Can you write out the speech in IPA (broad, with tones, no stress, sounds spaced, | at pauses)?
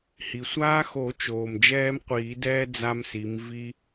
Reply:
h i˩ sʷ aː˦ x o˨˩˦ t͡ʃ oː˩ m d͡ʒ ɛː˦ m qʷ iː˨˩˦ d ɛː˦ d͡z a˦ m s i˨˦ m v i˦